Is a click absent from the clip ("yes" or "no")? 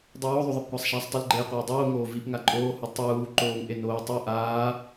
no